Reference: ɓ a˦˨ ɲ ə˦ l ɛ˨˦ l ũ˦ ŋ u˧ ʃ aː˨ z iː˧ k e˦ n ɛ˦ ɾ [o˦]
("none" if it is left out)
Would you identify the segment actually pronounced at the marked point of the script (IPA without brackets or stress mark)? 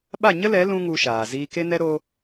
o˦